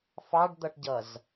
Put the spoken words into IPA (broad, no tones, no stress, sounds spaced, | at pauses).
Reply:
f ɑ ɖ d̪ ʌ ʈ ɟ ʌ z